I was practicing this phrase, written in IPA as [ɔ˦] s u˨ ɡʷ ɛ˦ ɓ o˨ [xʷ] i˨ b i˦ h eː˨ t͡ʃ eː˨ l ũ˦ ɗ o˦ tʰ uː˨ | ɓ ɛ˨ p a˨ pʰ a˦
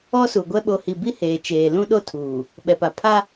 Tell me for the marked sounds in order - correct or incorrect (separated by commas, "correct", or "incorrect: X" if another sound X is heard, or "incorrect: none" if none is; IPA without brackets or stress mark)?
correct, incorrect: h